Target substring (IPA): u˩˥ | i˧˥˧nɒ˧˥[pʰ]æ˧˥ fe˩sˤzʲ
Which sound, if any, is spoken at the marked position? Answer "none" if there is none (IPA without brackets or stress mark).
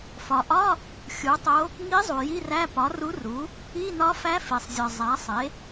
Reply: f